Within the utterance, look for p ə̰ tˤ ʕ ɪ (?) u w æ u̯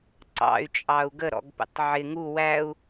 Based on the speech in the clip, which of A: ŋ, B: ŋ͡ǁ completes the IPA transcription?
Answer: A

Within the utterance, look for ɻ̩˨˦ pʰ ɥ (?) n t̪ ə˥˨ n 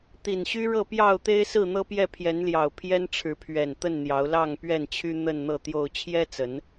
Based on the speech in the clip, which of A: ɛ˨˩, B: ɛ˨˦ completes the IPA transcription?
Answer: A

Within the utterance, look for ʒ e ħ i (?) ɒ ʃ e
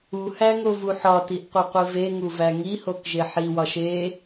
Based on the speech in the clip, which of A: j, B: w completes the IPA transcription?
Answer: B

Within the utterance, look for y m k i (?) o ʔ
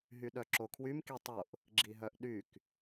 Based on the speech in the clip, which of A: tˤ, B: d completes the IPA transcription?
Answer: A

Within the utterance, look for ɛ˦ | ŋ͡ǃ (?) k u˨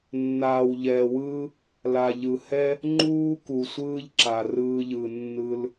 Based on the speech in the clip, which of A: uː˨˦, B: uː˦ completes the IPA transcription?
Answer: B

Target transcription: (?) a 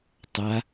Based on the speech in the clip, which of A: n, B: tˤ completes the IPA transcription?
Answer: B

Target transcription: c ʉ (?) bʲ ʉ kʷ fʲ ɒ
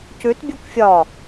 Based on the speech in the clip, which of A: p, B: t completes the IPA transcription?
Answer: B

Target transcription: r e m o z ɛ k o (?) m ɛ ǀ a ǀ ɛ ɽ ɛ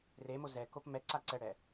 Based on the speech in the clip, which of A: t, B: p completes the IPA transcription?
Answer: B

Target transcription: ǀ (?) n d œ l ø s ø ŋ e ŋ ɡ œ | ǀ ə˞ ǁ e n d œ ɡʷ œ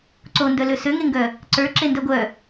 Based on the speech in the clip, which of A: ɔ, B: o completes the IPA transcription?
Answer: B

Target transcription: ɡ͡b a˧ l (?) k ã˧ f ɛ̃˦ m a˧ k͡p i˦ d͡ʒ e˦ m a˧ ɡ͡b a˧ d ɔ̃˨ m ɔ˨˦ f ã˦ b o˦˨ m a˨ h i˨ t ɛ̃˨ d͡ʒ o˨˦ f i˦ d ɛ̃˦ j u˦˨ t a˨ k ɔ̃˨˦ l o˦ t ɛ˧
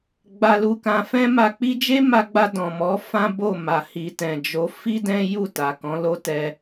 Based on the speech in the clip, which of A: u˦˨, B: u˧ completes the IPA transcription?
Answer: B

